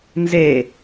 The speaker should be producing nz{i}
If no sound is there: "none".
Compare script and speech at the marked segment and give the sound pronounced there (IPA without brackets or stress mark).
e